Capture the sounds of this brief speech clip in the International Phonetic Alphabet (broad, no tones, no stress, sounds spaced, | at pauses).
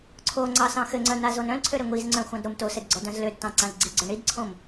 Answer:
ǀʰ o ŋ͡ǀ ɑ s ɑ̃ x ɘ ŋ͡ǀ œ n̪ a z o n œ̃ l ǀʰ ø ɾ ɘ ŋʷ i z ŋ͡ǀ œ̃ xʷ ɑ̃ d ɾ o m t o s ɘ d ɡ͡ǀ ɔ d œ̃ z l ø d t ɑ̃ ǀ ã z ɡ͡ǀ i ɡ͡ǀ œ ɳ i d ǀʰ õ m